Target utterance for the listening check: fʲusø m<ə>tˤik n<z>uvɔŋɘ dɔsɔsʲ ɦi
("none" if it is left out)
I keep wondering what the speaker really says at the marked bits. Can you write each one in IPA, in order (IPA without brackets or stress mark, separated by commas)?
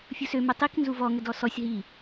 ə, z